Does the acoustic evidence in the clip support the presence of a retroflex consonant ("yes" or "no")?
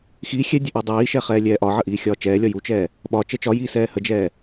no